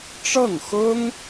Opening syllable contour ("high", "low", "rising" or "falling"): falling